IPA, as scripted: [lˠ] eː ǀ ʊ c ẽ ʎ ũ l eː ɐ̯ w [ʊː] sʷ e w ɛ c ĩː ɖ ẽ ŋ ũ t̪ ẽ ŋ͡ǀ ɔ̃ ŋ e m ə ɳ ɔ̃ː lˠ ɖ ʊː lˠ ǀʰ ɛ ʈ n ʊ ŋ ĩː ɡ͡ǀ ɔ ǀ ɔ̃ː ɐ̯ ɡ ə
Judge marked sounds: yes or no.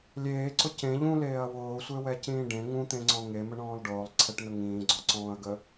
no, yes

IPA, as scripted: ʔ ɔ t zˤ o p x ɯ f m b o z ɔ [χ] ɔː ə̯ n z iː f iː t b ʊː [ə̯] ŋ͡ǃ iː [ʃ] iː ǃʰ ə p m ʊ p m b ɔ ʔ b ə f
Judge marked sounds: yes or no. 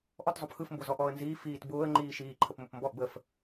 no, yes, yes

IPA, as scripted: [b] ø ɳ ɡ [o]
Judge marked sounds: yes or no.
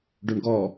no, no

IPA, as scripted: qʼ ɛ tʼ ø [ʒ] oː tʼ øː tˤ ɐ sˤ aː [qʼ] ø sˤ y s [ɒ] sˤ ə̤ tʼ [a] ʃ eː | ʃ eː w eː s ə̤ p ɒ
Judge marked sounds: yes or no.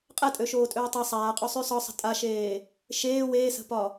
no, yes, yes, yes

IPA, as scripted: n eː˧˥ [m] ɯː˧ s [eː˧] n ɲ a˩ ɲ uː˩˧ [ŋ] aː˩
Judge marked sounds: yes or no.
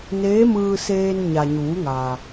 yes, yes, yes

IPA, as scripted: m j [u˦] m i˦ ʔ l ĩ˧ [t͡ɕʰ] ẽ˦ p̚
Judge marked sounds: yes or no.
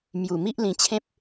no, yes

